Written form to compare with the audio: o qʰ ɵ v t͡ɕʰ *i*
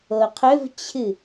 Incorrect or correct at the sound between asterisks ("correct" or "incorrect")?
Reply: incorrect